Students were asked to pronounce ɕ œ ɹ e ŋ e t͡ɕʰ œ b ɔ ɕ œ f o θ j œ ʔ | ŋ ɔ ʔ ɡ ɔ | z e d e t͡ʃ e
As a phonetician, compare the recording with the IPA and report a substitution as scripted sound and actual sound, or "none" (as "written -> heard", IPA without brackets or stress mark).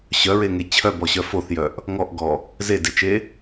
none